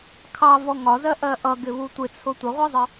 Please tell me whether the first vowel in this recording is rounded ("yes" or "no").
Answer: no